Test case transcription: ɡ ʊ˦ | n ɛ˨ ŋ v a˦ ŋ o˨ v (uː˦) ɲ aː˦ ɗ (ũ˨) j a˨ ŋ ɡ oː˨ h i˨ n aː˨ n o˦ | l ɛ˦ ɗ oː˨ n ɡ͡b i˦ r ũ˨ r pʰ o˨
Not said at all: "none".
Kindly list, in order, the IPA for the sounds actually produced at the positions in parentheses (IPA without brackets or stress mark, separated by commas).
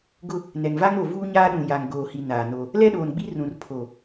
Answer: uː˦, ũ˨